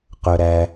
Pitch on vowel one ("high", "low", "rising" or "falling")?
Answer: low